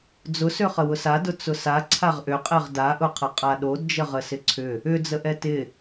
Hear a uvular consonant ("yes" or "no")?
yes